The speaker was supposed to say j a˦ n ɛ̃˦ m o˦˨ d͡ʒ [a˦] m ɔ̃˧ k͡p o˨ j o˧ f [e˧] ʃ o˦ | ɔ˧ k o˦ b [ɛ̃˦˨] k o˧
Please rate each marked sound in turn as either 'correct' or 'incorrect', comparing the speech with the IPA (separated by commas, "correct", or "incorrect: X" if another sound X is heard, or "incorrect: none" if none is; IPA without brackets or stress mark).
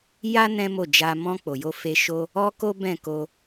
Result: incorrect: a˧, correct, correct